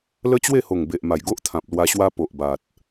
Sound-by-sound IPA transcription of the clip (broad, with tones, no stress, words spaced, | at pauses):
lə˦t͡ɕwe˥˧ho˨˩ŋ be˨ʔma˨˩jɡo˦ʔt̪ʰã˨p̚ lwa˧ɕwa˦ po˨ʔba˨t̚